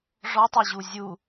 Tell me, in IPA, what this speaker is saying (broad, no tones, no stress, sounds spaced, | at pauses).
ʐ ɔ tˤ o ʑ u zʲ u